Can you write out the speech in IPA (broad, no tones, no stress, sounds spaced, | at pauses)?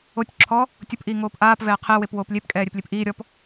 o tʲ ǁʰ ɔ | tʲ ʊ p ʔ iː ŋ oː p ʔ aː p v ɛː qʰ e w e p w oː p lʲ e p kʼ ɛː ɾʲ e p lʲ e p ʔ iː ɾʲ ɔ p